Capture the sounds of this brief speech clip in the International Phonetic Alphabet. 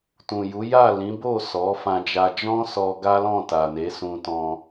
t ũ˨ j u˨˦ j a˦˨ l ĩ˨˦ b o˦˨ s ɔ˨˦ f ã˧ d͡ʒ a˧ d͡ʒ ɔ̃˦ s ɔ˧ ɡ a˦ l ɔ̃˦˨ t a˨ n e˨˦ s ũ˧ t ɔ̃˧

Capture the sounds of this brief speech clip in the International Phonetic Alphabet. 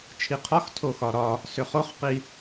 t͡ʃʰ i qʰ ɒ x tʰ o x ɒ ɾ ɒ | s ʏ χ o χ q i

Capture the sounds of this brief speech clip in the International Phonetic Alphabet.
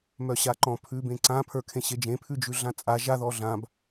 m œ ɕ a ǃ ɔ̃ pʰ ʉː b ẽ ǀ ã pʰ ə˞ kʰ ẽ ɕ e d͡ʒ ẽ pʰ ʉ d͡ʒ ʉ ɮ ã t͡sʼ a ʒ a ð ɔ ɮ ã b

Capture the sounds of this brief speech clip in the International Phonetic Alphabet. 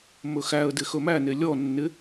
m ɵ x æ ə̯ d ɪ x ɵ m æ n e lʲ ɔ nː ɪ

